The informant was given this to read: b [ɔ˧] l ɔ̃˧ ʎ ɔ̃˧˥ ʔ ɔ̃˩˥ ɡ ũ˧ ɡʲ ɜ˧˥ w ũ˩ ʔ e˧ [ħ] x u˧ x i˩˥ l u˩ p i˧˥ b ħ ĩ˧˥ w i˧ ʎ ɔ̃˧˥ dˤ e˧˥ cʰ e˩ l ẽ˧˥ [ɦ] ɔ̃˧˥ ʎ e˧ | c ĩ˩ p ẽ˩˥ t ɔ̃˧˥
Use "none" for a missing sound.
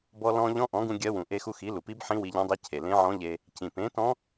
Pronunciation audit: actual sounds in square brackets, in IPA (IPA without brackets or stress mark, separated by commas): ɔ˧, none, ʕ